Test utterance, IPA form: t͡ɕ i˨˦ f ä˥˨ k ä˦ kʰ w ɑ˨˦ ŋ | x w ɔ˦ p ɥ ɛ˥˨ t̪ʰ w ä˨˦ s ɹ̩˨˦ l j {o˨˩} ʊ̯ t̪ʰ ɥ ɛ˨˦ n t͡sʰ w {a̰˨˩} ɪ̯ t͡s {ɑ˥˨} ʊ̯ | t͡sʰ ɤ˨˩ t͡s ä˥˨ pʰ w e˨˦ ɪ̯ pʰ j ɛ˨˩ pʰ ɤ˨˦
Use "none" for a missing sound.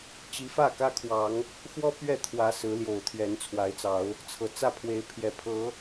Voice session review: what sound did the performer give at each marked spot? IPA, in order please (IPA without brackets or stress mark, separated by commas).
o˨˩, a˨˦, ɑ˨˦